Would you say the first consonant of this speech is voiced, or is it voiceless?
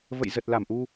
voiced